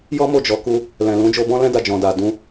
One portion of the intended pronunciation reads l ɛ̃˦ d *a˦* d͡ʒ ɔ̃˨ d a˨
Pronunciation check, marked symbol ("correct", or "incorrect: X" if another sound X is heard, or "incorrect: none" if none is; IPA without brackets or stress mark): incorrect: a˧